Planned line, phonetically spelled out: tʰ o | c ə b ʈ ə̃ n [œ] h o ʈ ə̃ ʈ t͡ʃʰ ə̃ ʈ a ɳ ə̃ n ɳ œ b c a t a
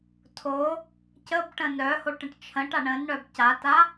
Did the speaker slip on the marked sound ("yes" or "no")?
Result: no